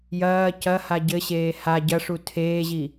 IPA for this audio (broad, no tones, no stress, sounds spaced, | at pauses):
j ɐː c ɐ h a ɟ ɘ ɕ eː h a ɟ ɐ ʂ u tʰ eː ʑ i